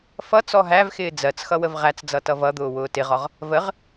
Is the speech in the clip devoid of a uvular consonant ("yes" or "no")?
no